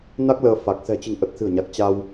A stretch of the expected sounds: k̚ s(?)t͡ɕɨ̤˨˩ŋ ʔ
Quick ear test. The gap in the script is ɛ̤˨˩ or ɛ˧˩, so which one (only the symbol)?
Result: ɛ̤˨˩